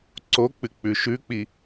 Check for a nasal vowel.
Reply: absent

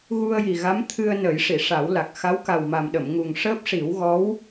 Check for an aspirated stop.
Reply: present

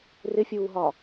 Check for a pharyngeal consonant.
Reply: absent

